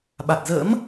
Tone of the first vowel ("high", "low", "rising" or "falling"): low